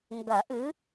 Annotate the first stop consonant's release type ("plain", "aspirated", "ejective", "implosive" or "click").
plain